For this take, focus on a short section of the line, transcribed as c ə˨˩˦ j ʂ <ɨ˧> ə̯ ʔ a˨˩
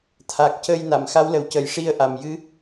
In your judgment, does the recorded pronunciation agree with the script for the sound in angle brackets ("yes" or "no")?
no